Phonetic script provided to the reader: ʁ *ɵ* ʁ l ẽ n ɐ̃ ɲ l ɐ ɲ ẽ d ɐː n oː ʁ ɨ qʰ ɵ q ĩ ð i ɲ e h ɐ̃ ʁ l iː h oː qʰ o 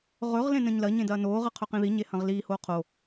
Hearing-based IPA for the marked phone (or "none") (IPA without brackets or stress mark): ɵ